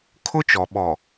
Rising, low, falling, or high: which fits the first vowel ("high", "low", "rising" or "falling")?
high